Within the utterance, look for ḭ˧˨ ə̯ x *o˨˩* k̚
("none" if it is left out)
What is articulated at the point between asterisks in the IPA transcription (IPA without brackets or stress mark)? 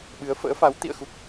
u˨˩